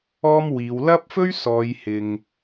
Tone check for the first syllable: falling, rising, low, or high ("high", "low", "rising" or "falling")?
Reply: high